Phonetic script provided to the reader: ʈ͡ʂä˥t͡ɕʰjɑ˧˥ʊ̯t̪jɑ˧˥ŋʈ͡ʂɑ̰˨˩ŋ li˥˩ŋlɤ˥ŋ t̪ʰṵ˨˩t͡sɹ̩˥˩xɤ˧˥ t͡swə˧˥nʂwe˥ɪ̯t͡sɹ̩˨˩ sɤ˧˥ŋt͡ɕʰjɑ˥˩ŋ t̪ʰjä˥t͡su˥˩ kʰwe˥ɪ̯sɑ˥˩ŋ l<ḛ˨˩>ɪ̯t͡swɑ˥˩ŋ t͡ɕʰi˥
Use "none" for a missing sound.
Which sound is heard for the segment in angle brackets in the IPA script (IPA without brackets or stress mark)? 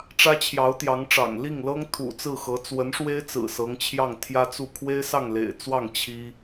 ḛ˨˩